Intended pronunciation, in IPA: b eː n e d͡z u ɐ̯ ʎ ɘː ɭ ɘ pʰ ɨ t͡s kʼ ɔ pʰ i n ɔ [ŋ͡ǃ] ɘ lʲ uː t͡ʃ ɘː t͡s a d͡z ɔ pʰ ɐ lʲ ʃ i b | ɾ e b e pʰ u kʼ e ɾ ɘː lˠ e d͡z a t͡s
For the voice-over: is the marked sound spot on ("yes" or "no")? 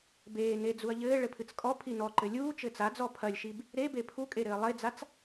no